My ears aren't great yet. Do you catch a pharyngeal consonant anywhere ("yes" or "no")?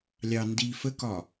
no